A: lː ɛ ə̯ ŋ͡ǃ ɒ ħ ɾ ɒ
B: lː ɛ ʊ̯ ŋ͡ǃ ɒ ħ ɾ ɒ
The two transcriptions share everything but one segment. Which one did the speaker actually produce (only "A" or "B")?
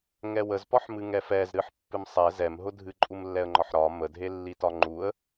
A